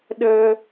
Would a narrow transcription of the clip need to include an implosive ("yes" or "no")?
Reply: yes